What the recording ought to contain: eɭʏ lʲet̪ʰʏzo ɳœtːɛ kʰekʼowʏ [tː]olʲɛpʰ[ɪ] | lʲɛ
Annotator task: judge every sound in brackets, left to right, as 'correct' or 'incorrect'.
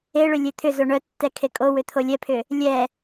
incorrect: t̪ʰ, incorrect: ʏ

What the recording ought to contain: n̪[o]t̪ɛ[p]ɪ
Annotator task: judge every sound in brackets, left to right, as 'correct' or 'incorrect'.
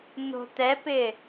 incorrect: o̤, correct

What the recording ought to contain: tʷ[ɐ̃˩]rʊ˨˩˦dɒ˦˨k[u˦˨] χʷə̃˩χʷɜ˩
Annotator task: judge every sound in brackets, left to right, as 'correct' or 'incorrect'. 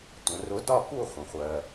incorrect: ə̃˩, correct

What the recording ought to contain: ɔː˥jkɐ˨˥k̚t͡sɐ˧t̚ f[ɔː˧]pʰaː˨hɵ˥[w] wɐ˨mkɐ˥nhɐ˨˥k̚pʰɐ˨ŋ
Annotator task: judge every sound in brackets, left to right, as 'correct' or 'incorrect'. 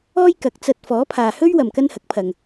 incorrect: ɔː˨˥, incorrect: ɥ

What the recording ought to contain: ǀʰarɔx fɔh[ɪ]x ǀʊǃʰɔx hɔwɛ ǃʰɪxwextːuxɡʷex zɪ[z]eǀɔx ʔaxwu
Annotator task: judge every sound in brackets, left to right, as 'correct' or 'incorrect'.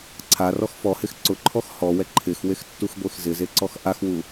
correct, correct

